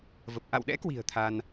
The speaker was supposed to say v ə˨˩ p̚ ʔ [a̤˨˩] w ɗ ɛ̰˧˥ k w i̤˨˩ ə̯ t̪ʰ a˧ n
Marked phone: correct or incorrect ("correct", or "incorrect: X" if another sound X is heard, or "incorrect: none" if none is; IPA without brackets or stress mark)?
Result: incorrect: a̰˧˨